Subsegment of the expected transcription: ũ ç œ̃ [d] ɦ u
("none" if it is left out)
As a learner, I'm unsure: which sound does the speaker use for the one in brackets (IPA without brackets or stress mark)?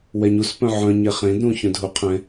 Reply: d